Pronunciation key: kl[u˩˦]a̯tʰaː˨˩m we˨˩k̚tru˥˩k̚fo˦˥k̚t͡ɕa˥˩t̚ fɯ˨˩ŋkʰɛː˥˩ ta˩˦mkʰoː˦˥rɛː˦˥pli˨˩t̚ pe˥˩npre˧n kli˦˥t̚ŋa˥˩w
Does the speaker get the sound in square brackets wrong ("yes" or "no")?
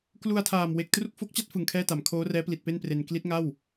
yes